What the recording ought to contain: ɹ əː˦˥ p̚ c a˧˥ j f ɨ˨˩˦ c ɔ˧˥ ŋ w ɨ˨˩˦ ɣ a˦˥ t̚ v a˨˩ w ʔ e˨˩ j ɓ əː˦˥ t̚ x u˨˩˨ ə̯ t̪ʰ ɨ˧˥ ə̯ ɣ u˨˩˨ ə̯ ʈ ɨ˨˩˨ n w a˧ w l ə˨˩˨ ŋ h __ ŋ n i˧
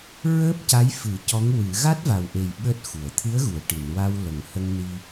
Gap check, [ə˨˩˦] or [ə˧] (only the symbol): ə˧